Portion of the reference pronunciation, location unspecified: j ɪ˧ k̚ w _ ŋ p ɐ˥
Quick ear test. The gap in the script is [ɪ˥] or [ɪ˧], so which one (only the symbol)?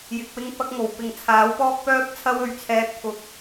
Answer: ɪ˥